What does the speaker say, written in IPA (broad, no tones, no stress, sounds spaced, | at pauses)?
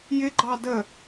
j ɪ ɡ͡ǃ ɑ d ə